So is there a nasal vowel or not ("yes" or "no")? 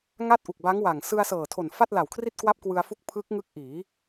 no